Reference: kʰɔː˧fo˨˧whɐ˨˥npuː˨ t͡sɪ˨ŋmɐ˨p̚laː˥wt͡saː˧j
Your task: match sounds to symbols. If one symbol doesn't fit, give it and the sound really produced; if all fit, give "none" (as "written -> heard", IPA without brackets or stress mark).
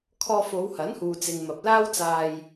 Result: p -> h